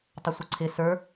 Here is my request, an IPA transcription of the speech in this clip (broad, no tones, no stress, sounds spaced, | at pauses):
tˤ ə sʷ ɪ ǀʰ ɪ s ə˞